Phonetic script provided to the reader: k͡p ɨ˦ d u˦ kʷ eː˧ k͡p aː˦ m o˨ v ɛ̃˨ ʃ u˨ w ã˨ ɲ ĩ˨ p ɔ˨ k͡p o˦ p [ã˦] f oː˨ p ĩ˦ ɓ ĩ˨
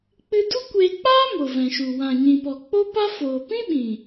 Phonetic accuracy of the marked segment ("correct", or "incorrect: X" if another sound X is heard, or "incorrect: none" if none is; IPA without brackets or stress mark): incorrect: a˦